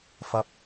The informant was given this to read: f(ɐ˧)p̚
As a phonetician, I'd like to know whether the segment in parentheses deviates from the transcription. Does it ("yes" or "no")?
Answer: no